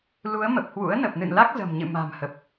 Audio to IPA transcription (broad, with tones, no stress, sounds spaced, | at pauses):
l u˨˦ ə̯ m ə˨˩ p̚ h w ṵ˧˥ ə̯ n ə˨˩ p̚ n ɨ̰˧˨ n l a˦˥ k̚ z ə̤˨˩ m ɲ ɨ̰˧˨ m a̤˨˩ m h ə˨˩ p̚